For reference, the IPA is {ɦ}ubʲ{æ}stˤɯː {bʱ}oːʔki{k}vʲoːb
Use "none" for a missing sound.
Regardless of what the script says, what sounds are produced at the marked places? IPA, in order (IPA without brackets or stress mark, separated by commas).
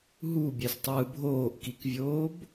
ɦ, æ, bʱ, k